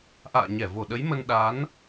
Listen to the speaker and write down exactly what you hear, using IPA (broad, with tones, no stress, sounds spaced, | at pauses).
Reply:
ʔ a̰ː˧˨ ɲ ɛ˧˩ v o˧˩ ɗ ə˨˦ j m ə˧ n ɗ a˨˦ n